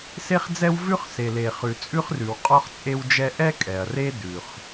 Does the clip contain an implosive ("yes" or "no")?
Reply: no